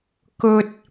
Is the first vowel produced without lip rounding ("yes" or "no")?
no